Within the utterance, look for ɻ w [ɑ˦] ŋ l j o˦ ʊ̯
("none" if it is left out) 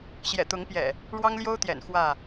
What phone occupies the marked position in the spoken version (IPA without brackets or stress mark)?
ɑ˦